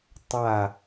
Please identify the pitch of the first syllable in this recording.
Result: falling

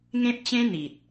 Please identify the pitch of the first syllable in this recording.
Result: high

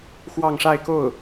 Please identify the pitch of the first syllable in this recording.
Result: falling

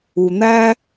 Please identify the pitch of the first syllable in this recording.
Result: low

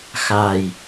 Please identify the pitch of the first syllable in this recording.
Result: low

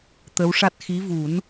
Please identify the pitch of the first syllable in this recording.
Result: rising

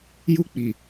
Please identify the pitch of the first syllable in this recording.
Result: high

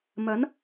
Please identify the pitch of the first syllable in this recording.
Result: rising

